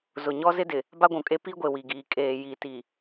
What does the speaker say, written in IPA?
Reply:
z ʊ˨ ɲ ɔ˦ z ɪ˦ d ɪ˨ | b a˦ ɡʷ ũ˨ kʼ e˦ p i˦ ɡʷ e˨ w i˨ ɡ iː˨ kʼ eː˨ j i˨ t i˨

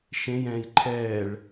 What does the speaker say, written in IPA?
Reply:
ʃ ẽ j ɛ̃ː j ǃʰ ɛː ɭ

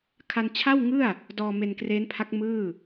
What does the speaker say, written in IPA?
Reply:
kʰ a˧ n t͡ɕʰ a˥˩ w ŋ ɯ˥˩ a̯ | d ɔː˧ m e˧ n k r eː˦˥ n pʰ a˦˥ k̚ m ɯː˥˩

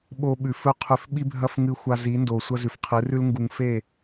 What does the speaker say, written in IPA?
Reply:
ɓ o˧ ɓ ʉ˨ f ɵ˦ qʰ ʉ˨˦ f ɓ i˦ bʱ ɐ˦ f ŋ ɨ˧ xʷ a˧ z i˨˦ n d o˨ sʷ ɐ˦ z ʉ˨ f qʰ ɨ˨˦ r ʉ˦ l ŋ ɡ u˧ ŋ f e˦˨

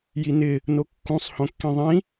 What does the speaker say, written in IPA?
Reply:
j i n ɪ | n o kː ũ sˤ h õ kː ĩ ðˤ ĩ

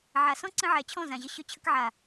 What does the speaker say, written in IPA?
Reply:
ʕ a˨ s ɔ̃˦ ǀ ə̃˧ ʕ ɛ˨ t͡ɕʰ ɔ̃˦˨ z ã˨ ʑ ə˧ ɕ ɵ˦ t͡ɕʰ ə˦ k ʕ a˨

